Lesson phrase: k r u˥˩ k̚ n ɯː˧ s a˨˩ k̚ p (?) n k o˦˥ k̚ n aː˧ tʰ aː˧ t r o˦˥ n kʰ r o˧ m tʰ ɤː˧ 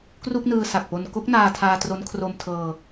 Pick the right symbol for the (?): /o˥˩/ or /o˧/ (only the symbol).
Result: o˧